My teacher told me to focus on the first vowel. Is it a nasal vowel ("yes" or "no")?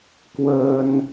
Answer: no